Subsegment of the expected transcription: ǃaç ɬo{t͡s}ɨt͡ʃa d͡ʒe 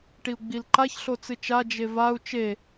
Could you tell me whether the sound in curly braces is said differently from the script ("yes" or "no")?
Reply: no